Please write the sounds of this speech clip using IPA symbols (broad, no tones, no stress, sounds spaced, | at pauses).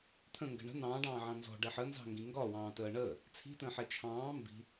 t̪ʰ ə̃ ŋ ɡ ə̤ ɳ ə̤ n̪ ɑ̃ː ɖ ɑ̃ː ʕ ɑ̃ n z ɔ̤ ɖ ɛ ħ ə n z ɑ̤ ŋ ɡ ĩ ŋ ɡ ɒ w ɑ̃ː t əː ɳ əː | t͡sʰ i̤ t ə̃ː ħ ɛ t͡ʃʰ ɑ̃ː m b i̤